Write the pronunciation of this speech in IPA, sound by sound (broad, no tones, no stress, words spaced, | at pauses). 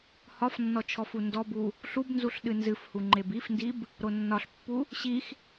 hɒfnːɔ t͡ʃʰɔfundɔbu | ɬubnzuɬ ɗɨnzɨfhu ŋ͡ǃebifndib | ɾonːɒɬpːu | ɕix